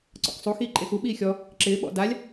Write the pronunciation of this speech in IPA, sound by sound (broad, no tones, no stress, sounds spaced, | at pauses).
ǀ ɔ̰ k sˤ u x iː ǃʼ e x u ɓ iː xʲ ɔ | ǁ ɪː ɓ ɔ̰ d a lʲ